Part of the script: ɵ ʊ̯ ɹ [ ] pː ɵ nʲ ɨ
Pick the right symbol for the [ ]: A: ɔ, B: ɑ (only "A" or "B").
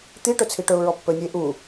A